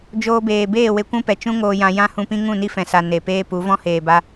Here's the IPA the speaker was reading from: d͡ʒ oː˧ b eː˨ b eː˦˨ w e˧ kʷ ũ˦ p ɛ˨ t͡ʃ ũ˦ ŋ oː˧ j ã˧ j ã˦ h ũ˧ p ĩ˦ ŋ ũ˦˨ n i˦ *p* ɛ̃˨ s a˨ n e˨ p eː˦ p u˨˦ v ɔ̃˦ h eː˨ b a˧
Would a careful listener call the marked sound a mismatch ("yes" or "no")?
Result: yes